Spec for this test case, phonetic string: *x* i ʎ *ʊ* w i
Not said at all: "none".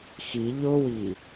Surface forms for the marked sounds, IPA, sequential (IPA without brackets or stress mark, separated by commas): x, ʊ